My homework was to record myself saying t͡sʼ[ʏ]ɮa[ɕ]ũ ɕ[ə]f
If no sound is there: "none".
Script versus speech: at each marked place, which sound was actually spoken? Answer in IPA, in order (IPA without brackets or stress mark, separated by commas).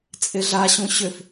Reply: ɪ, ɕ, ʏ